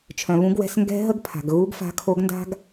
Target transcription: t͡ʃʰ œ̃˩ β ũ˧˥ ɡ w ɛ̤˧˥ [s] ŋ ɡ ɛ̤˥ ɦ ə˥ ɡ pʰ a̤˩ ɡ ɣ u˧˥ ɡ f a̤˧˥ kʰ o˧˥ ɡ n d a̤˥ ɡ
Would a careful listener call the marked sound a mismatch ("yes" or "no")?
no